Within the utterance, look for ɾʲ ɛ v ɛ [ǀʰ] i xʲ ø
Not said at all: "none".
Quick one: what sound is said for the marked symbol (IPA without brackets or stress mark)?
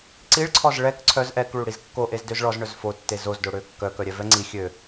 ŋ͡ǀ